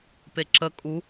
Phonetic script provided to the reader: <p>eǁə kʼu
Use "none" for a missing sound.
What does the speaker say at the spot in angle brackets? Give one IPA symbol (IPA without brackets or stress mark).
p